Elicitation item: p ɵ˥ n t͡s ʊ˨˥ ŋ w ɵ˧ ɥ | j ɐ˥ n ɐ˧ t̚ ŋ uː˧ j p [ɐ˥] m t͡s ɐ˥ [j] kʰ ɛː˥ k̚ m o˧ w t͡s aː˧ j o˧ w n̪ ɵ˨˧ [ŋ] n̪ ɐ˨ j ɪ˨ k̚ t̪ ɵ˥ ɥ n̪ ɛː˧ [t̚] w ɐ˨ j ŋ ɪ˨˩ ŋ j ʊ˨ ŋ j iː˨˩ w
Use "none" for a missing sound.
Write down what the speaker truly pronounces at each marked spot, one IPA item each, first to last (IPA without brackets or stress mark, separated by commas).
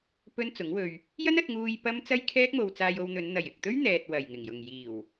ɐ˥, j, n, t̚